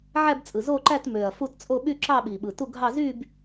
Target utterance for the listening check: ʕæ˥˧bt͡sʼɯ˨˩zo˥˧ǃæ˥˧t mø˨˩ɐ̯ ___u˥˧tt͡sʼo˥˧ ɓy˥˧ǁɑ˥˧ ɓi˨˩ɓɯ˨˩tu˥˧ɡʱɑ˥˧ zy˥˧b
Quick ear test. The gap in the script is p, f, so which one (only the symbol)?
f